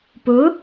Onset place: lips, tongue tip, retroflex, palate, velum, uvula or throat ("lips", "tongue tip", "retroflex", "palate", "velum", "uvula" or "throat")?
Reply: lips